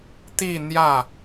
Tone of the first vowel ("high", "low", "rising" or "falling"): falling